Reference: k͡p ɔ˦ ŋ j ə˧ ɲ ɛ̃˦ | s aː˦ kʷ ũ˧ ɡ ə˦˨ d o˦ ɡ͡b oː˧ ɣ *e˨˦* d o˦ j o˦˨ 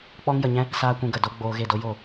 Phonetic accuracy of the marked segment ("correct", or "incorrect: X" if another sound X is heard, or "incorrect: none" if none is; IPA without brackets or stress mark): incorrect: e˦˨